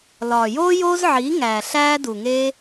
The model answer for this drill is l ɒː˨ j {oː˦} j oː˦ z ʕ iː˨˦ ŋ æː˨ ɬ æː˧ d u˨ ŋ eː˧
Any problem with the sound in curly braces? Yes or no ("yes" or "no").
no